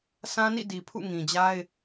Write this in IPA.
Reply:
sʰ ã˦ n ḭ˦˨ d i˨ pʰ ṵ˦˨ ŋ ĩ˨ d͡ʑ a˦ ɪ̯

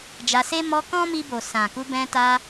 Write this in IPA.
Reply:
d͡ʒ a˧ s e˦ m ɔ˧ k ɔ̃˦ m i˧ b o˨ s ã˨ k u˧ b ɛ̃˧ t a˧

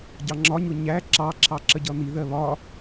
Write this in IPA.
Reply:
ɟ ɑ ŋ͡ǁ ɒ ɲ ʊ ɲ æ ǁ ɑ ǁʰ ɑ ǁ ə ɟ ʌ n̪ i ð ɜ β ɒ

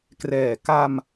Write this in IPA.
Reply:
k r ɛː˨˩ k a˧ m

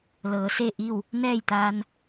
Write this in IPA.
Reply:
l ɤː˩˧ s e˥˨ ʔ i˥˨ w | n ɛː˥˨ j t̪ aː˧ n

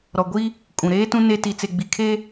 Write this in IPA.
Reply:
ɾ ɔ˨ ɡʷ i˦ | kʼ ũ˨ ɾ eː˦ t ũ˦ n e˦ t i˨ t͡s e˨ ɡ͡b i˨ kʰ e˦

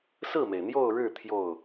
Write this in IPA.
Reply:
s ɹ̩˥˩ m e˩ ɪ̯ n̪ j o˥˧ ʊ̯ ɻ ɻ̩˥˧ t̪ʰ j o˥˩ ʊ̯

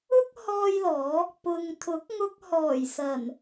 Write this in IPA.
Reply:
ʊ˥ k̚ h ɔː˥ j l ɔː˨˥ | p ʊ˨ ŋ t̪ʰ ʊ˨˥ k̚ ŋ ʊ˧ k̚ h ɔː˨˩ j s ɐ˨˩ n

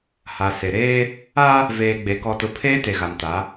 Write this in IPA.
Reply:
h a˨ s e˨ ɾ eː˦ | a˦ | v eː˨ ɡ͡b e˨ k ɔ˨ t ʊ˨ pʰ eː˦ t e˨ ɣ a˨ m t a˨˦

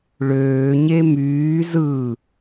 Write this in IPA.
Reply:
ɭ øː ɲ e m yː z ɯ

